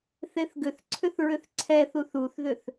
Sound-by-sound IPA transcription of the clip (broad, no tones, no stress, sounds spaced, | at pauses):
θ e θ ɡ ʏ θ ǀʰ ʏ θ ɹ ʏ θ ǀʰ ɛ θ u θ u θ ð ʏ θ